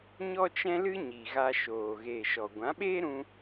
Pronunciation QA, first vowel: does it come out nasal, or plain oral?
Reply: oral